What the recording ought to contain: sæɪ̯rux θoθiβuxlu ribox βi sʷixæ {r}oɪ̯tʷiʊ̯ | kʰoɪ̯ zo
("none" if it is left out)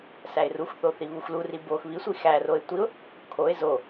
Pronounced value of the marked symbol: r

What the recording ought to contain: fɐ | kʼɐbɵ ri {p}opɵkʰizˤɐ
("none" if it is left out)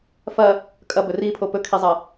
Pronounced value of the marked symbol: pʰ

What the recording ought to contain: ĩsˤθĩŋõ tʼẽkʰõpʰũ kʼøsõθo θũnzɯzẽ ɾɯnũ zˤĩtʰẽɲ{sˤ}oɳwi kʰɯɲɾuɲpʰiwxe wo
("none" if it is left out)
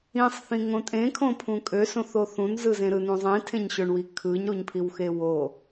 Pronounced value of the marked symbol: ɕ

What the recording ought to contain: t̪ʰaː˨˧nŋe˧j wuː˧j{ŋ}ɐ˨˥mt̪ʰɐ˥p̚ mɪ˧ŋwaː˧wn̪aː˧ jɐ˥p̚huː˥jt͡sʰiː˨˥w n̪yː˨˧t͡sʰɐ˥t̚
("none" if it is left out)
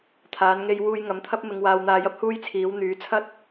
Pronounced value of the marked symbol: ŋ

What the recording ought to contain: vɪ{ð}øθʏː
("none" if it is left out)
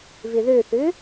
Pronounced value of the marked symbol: ð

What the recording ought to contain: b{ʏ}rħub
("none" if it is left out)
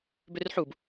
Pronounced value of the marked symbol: ʏ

